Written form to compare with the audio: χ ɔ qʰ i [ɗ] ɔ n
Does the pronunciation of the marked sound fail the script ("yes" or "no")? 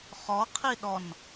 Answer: no